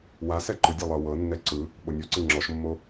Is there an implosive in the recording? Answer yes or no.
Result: yes